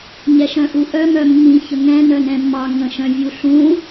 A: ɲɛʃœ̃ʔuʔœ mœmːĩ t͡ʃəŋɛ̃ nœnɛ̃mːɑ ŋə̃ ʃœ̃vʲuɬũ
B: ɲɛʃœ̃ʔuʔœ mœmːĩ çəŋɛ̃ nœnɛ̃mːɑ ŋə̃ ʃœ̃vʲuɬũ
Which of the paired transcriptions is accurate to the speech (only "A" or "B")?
B